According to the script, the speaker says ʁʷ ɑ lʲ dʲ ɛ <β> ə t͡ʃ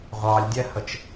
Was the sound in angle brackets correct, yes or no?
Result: no